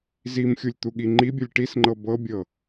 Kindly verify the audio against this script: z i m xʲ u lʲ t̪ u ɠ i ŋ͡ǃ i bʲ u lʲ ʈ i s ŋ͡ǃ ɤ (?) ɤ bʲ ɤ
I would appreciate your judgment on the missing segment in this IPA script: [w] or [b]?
b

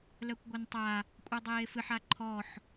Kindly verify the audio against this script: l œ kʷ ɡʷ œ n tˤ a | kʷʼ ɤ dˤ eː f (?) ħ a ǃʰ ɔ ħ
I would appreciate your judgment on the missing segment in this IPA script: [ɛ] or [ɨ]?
ɨ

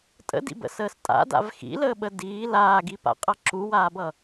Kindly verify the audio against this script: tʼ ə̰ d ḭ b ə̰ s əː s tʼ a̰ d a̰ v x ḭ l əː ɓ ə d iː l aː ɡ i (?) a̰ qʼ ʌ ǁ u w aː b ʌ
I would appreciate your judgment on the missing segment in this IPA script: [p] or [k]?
p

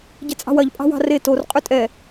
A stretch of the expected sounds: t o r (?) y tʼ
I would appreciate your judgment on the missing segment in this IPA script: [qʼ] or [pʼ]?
qʼ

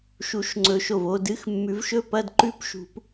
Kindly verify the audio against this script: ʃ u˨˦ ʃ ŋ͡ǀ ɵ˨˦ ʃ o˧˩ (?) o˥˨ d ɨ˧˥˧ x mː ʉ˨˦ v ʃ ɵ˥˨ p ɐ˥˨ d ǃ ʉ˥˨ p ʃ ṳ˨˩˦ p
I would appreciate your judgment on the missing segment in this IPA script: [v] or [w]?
v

